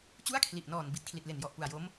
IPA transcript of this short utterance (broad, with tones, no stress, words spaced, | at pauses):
t͡ɕu˥˩a̯kʰli˨˩ʔnɔː˨˩n bi˨˩t̚kʰli˨˩t̚le˨˩njɔ˨˩ʔ pu˨˩a̯jo˦˥m